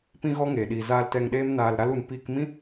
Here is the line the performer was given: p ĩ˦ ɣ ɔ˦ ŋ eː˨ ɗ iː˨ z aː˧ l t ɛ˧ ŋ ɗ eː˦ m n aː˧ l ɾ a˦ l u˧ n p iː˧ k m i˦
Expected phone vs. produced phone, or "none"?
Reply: i˦ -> ĩ˦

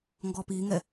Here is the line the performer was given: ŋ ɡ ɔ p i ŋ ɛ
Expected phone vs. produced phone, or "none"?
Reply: none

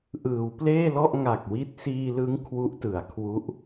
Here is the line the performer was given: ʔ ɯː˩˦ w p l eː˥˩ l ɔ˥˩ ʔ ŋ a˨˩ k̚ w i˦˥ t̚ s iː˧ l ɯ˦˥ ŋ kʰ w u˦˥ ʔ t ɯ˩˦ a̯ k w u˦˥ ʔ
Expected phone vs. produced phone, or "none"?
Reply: k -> kʰ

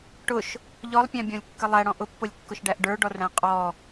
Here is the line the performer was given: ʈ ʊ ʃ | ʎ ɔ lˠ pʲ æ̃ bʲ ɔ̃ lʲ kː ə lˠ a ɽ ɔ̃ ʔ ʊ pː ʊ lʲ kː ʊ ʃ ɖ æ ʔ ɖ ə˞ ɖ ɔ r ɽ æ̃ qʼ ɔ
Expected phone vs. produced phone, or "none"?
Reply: a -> æ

